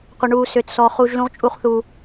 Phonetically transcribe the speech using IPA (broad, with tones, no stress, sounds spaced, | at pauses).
qʷ ə˨ ɳ uː˨ s ʏː˨ t s ɔ˧ χ uː˧ ʒ l ũ˦ ʁ t͡ʃʼ u˦ χ θ u˧